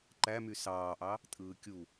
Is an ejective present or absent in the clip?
present